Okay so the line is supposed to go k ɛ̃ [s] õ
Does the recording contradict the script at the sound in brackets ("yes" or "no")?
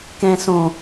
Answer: no